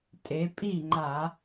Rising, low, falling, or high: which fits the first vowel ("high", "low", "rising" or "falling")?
rising